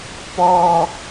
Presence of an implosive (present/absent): absent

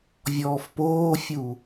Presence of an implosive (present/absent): absent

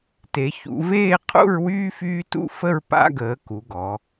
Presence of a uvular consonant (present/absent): present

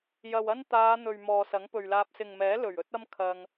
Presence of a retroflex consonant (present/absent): absent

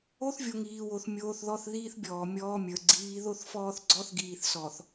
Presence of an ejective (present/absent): absent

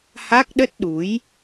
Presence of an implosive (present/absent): present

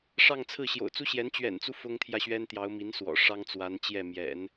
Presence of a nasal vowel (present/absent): absent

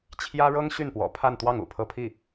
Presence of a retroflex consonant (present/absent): present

